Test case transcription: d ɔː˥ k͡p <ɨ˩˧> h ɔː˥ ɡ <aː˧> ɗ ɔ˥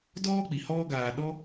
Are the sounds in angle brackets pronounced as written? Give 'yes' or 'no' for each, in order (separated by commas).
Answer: no, yes